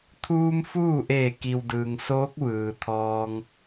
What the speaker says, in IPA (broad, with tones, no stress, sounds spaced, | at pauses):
t̪ʰ uː˧ m f uː˥˨ ʔ eː˧˩ k i˩ w d ɯː˩ ŋ s oː˧˥ k̚ ʋ ɯː˩ t̪ʰ ɔː˧ ŋ